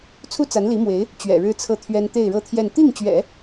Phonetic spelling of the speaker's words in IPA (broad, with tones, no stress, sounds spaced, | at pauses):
t͡sʰ u˥ t͡s a˧˥ n l i˧˥ m w e˧˥ ɪ̯ | t͡ɕ ɥ ɛ̰˨˩ ɻ ɻ̩˥ t͡sʰ ɤ˥˩ t̪ʰ ɥ ɛ˥ n t̪ e˥˧ ɪ̯ ɻ ɤ˥˧ t̪ʰ j ɛ˥˧ n t̪ i˥˩ ŋ t͡ɕ ɥ ɛ̰˨˩˦